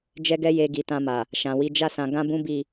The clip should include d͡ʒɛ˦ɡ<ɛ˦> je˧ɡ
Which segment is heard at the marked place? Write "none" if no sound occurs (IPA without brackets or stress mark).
ɛ˦